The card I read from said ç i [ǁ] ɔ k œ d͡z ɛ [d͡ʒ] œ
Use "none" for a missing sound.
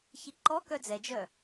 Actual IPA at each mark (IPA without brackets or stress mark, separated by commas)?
ǃ, d͡ʒ